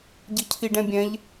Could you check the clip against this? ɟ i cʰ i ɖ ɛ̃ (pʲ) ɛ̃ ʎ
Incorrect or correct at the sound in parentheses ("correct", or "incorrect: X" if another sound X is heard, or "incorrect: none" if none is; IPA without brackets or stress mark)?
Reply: incorrect: bʲ